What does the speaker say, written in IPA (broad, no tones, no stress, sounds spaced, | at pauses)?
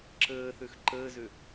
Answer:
ǁ əː θ ø x ǃ əː z ø